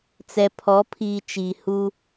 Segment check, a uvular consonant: absent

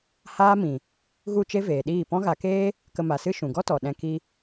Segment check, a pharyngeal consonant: absent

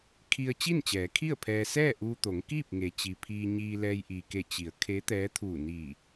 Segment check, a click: absent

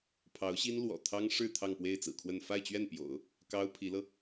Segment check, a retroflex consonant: present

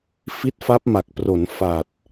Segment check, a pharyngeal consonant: absent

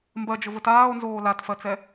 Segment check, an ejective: absent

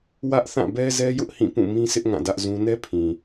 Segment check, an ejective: absent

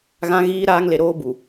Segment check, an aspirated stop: absent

